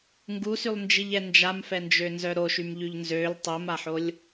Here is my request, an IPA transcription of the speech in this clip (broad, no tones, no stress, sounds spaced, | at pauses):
ŋ ɡ u s y lˠ n d͡ʒ i ʎ ɛ n d͡ʒ a m f ɛ n d͡ʒ ø n z œ ɾ o ʃ y m ʎ y ʎ n z ø l tˤ o m a ħ o lʲ